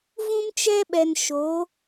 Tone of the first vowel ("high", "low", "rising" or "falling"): high